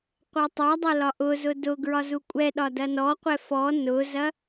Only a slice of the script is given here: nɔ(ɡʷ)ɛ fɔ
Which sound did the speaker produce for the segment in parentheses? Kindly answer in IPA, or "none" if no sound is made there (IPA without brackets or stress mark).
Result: qʷ